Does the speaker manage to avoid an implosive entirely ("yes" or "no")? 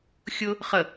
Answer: yes